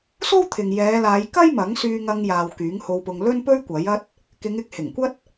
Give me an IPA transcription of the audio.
s o˥ w t̪ʰ ɪ˨ ŋ j ɛː˨˧ l aː˨˧ j k ɐ˥ j m ɐ˨˥ ŋ s yː˧ ŋ ɐ˧ ŋ j aː˨ w k yː˨˥ ŋ h o˧ w p ʊ˧ ŋ l ɵ˥ n p ɵ˥ ɥ kʷ ɐ˨˥ j ɐ˥ t̚ | k ɪ˨˧ ŋ ɪ˨˥ k̚ h ɪ˨˩ ŋ kʷ ɐ˥ t̚

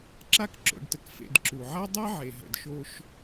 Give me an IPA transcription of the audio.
ǁ a˦ k ǁ o̰˨ ɖ t ə˨ k f ḛ˨ d ǁ u˩ ʕ a˦ dˤ ɛ˦ ʕ e˩ ɦ ə̰˩ d ʃ o˨ ʃ

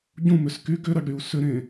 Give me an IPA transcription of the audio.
ɟ ũ m ʏ s k y ɡ ʏ ɾ ɐ ɖ ɾ y u̯ s ʏ ɾ ẽ

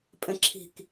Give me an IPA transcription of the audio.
pʼ ɛ̃ ǁʰ i̤ k

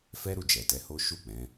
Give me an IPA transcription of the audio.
f ɛ˦ ɾ u˦˨ d͡ʒ ɛ˨ t ɛ˨˦ h o˦ ʃ u˦˨ k͡p ɛ̃˨˦

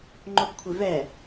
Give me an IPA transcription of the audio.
ŋ͡ǃ o b kʷʰ e v ɛ

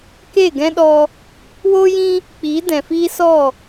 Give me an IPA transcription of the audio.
k e˦˨ ɡ ɛ̃˦ ɗ ɔ˧ | w oː˦ j ĩ˦ | k͡p iː˨˦ d ɛ̃˨ f iː˦ s ɔ˦˨

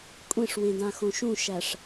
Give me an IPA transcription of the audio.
kʷʼ ẽ ʂ w ẽ d ã x õ ʃ ũ ʃ æ ʂ

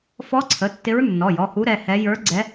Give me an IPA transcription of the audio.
f ɔ˧˥ ǀʰ ə˩˧˩ tː ɪ˧˥ ɹ nː ɔ˩˧˩ j ɔ˩˧˩ h u˧˥ ɾ ɛ˩˧˩ h ɛ˧˥ j ə˞˧˥ ɡ͡ǀ ɛ˧˥

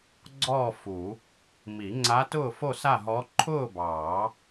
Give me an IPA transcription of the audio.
ɡ͡ǀ ɔː˥˨ f u˨˩˦ | m i˨˩˦ ŋ͡ǀ a˧˥ t ʊː˥˨ f o˥˨ s a˥˨ ɦ ɔ˧˥ ǃʰ ʊː˥˨ b ɑː˨˩˦

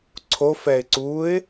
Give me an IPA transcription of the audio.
ǀʰ o f ɛ ɪ̯ ǀ u ɪ̯

